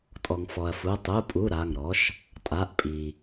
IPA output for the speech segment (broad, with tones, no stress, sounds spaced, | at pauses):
tʼ ɔ˩ ŋ f ɔ˩ ɐ̯ f u˩˧˩ tˤ u˩˧˩ pʼ u˩˧˩ ɾ a˩˧˩ ŋ ɾ ɔ˩˥ ʃ | tʼ a˩˧˩ ʔ pʼ i˩